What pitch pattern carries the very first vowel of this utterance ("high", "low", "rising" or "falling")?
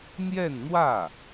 falling